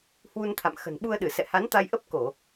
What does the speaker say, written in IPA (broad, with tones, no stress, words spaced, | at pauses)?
hwu˧nt̪ʰa̰˧˨m xə̤˨˩nɓu˧ə̯ɗɨ˧˩ sɛ̰˧˨ha˨˦nt̪a˧jʔə˦˥p̚ ko˧˩˨